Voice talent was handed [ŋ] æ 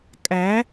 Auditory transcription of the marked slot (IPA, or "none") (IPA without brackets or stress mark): kʼ